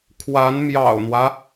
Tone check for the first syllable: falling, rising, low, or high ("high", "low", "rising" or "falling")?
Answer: rising